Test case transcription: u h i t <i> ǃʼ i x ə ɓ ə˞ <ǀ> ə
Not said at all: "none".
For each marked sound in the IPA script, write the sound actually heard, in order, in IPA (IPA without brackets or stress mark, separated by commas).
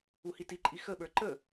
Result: i, ǃ